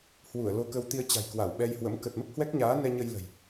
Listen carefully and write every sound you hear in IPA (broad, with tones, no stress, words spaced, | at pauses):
hwu˧˩ə̯lo˧kə˧w t̪i˧ə̯t͡ɕa̤˨˩jkwa˧˩w ɓɛ˧jhwə̰˧˥m kə˨˩t̚mə˦˥p̚hwɛ˦˥k̚ɲaː˨˦ nɛ˧ɲə˧jlə̤˨˩j